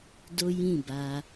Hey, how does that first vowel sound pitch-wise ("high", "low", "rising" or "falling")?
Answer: high